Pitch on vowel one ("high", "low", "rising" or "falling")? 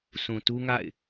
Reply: low